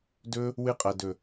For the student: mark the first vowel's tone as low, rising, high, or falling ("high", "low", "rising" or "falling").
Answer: high